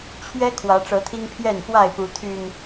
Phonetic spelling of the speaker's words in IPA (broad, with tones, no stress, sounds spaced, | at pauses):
t͡ɕʰ ɥ ɛ˦ kʰ w ä˨˦ ʈ͡ʂ ɤ˨˦ t̪ʰ i˦ ŋ pʰ j ɛ˥˨ n x w a˥˨ ɪ̯ p u˨˦ t̪ʰ y˨˩ n